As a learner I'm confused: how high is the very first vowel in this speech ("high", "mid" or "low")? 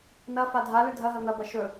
low